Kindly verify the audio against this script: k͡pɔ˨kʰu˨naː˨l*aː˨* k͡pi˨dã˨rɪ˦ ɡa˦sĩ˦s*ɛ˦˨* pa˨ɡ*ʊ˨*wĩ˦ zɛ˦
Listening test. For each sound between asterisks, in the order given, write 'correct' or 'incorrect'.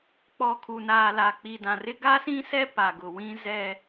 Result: incorrect: a˨, incorrect: ɛ˦, correct

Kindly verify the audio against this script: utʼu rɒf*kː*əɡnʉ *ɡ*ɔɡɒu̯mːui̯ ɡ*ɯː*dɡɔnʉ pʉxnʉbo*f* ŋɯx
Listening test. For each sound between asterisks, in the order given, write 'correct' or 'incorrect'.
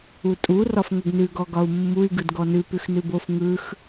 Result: incorrect: ŋ, correct, incorrect: ɯ, correct

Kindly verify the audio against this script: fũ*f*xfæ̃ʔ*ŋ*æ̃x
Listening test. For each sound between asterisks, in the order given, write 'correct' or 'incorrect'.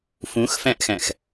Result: incorrect: none, incorrect: x

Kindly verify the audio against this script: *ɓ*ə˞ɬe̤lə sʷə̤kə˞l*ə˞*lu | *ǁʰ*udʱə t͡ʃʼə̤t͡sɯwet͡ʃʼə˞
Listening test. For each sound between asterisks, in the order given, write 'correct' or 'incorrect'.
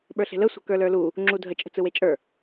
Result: correct, correct, incorrect: ŋ͡ǁ

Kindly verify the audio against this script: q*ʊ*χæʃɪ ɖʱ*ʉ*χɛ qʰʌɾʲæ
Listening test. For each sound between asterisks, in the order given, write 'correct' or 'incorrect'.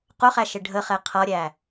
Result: correct, incorrect: ə

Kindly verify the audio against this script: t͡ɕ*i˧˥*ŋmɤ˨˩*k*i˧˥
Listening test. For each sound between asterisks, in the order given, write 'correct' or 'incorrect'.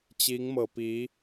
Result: correct, incorrect: p

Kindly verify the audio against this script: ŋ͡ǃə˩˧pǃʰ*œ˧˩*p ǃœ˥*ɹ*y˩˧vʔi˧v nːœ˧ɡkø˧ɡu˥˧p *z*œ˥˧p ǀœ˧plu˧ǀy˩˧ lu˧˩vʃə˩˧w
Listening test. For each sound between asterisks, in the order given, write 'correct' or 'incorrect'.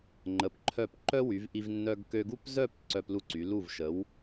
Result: correct, incorrect: w, correct

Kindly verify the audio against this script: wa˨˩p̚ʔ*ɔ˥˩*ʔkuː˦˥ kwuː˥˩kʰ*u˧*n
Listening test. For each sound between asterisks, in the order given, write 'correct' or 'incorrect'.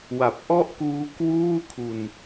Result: correct, correct

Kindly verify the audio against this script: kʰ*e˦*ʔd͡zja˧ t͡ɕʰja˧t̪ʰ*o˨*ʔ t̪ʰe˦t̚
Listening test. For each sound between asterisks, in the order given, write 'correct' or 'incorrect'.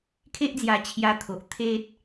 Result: correct, correct

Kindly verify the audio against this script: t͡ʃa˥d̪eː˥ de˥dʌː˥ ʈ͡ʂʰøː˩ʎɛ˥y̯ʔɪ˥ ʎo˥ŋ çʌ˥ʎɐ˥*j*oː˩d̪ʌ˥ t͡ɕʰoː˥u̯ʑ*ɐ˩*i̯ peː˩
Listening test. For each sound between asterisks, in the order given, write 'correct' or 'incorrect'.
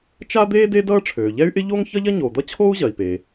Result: incorrect: ɲ, correct

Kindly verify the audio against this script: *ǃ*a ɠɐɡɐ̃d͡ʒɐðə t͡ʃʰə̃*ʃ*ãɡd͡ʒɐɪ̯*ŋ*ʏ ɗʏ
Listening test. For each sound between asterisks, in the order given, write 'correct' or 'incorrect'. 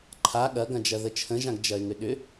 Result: incorrect: ǃʰ, incorrect: ʒ, correct

